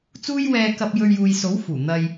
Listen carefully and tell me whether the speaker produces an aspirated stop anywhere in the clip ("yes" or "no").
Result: no